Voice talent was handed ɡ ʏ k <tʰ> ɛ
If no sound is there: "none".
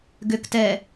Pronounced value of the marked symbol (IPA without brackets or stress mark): t